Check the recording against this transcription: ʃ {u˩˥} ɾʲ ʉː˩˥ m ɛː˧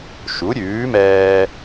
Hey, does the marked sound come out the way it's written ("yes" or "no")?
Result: yes